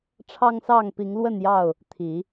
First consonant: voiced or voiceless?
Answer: voiceless